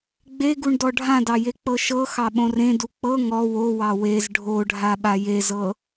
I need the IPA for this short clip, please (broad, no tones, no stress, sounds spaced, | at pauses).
ɡ͡b e ɡ u ɳ d ɔ ɖʱ ã d ɑ j e k͡p ɤ ʃ ɤ x ɑ ɓ õ r ẽ d u k͡p ɤ ŋ ɔ w o w ɑ w e z ɖʱ o ɖʱ a ɓ a j e z ɤ